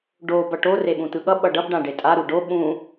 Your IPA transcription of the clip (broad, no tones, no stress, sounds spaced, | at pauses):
ɖ o b ʌ ʈ o r e ɓ ũ t̪ ɯ ɠ ʌ ɓ ʌ ɖ ʌ b ɖ ã ɖ e tʼ a ɾ u ɖ o ɓ ũ